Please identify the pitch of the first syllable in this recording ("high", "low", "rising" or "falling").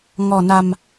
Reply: low